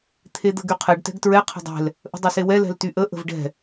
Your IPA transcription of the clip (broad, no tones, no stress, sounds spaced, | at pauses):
t̪ʰ e d̪ ə̤ ɡ y qʰ ɛ ɖ t ɛ̤ ɡ t ɹ ɛ qʰ ə̤ dˤ ɛ̤ l | ʔ ə̤ dˤ e s e w ɛ l ɛ̤ l t y ʔ ə ʔ ə̤ v ɖ ɛ̤